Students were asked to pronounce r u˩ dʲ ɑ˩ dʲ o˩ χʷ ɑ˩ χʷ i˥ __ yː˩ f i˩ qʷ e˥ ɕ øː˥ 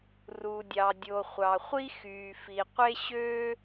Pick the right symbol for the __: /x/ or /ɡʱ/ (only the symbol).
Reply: x